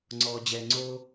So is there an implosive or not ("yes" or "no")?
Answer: no